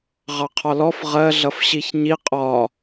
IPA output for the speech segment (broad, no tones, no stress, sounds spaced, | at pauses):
ʁ ɑ qʰ ɒ l ɔ f ʁ ɜ ɮ ʌ f ɕ i ç ɲ i qʼ ɒ